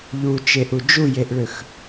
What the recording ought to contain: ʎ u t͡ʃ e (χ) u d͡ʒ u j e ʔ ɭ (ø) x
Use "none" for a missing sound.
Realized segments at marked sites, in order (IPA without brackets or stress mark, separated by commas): ʔ, ø